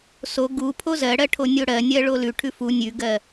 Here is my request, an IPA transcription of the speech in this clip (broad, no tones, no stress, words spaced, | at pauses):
so ɡu pʰozɜɽɜ ʈʰonʲoɽɜnʲɜ ɭolʉʈʰʉ fu nʲʉɡɜ